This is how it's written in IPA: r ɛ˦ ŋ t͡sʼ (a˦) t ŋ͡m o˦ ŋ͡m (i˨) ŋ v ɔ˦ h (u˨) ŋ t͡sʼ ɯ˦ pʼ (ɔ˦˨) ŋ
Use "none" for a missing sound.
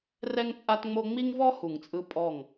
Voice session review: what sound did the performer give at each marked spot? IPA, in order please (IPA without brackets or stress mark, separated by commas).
a˦, i˦, u˨, ɔ˦˨